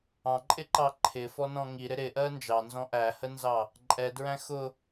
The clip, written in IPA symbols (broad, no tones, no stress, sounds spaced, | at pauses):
ɑ̃ ǃʼ ɪ ǃ ɑ ǃʰ ɪ f ɔ n ɔ̃ ŋ i ɾ ɪ ɾ ɪ ʔ ɜ n d͡ʒ ɑ n z ɔ̃ ʔ æ h ə n z ɑ | ǃʼ ɛ d ɹ æ̃ x ʊ